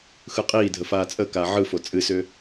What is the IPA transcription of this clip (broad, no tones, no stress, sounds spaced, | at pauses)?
x ɯ qʼ iː dʱ ə f aː t͡sʼ ə k aː ʕ ɯ f o t͡sʼ ɨ s ʏ